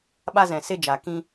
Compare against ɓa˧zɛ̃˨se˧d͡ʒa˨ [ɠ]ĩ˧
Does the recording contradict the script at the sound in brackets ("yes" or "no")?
yes